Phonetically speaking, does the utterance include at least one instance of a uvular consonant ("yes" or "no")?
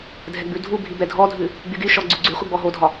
yes